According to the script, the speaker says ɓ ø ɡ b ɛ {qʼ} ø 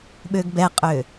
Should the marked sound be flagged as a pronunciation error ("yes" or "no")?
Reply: no